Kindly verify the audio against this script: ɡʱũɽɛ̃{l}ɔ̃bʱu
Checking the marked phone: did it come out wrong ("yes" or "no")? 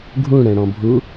yes